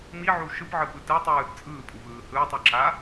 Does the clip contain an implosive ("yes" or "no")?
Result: no